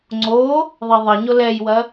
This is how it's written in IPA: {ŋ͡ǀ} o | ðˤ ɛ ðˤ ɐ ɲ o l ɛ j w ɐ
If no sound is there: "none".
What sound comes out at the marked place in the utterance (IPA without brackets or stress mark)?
ŋ͡ǀ